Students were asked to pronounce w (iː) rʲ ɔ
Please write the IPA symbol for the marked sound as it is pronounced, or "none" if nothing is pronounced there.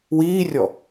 iː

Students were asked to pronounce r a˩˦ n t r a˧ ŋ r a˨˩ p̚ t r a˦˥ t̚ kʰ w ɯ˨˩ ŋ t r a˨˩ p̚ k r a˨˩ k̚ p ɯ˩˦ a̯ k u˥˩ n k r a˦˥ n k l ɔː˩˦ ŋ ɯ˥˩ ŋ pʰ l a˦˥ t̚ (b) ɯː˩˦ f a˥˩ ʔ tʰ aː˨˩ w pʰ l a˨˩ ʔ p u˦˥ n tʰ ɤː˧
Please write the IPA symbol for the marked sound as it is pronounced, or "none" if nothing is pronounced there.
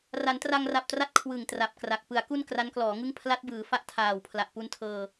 b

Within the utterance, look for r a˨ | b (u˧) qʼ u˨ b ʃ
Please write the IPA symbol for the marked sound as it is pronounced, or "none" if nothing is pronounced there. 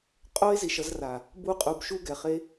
u˧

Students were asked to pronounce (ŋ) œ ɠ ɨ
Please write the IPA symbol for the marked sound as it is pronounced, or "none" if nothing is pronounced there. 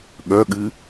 ɠ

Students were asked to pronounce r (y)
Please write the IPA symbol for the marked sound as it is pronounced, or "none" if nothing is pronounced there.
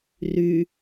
y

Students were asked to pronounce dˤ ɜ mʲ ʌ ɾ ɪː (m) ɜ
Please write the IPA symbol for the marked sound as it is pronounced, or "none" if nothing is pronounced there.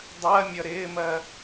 m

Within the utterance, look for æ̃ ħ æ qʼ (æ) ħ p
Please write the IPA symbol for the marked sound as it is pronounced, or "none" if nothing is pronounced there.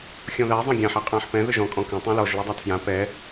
æ̃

